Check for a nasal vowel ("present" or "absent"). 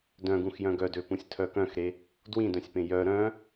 present